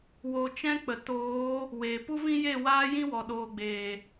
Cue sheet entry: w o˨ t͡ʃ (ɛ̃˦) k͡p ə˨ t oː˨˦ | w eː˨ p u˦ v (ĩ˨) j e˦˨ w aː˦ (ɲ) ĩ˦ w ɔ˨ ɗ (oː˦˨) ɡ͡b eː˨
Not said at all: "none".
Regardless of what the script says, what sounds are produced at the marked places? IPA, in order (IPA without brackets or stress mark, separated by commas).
ɛ̃˦, ĩ˦, j, oː˨